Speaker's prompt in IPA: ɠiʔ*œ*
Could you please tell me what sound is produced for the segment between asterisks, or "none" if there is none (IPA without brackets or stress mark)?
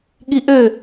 ø